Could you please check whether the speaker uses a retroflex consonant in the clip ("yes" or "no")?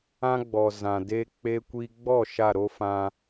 no